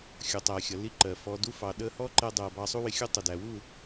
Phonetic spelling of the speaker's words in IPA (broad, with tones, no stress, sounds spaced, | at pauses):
xʲ ʊ˨ tˤ æ˨ xʲ ʌ˨ l i˦ ǃ ɜ˨ f ɔ˧ d u˦ f ɑ˨ ɗ ə˧ h ɔ˦ ǃ ɛ˧ dˤ ɜ˨ b ɑ˧ sˤ u˦ w ɪ˧ xʲ u˦ tˤ ə˨ d æ˨ w u˦˨